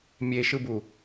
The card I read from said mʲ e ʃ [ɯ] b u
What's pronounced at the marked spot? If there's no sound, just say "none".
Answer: ɯ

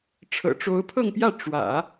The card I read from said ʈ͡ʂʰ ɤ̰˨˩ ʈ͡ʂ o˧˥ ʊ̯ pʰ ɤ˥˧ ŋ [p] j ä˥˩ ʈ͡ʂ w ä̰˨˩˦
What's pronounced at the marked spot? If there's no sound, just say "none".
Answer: p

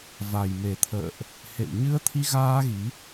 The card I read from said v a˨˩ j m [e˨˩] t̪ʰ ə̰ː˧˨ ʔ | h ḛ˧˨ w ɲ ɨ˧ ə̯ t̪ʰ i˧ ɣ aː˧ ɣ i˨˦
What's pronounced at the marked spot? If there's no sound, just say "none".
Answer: e˨˩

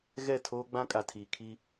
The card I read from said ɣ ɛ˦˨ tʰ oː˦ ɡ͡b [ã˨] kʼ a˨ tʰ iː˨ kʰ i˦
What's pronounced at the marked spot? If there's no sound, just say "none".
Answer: ã˦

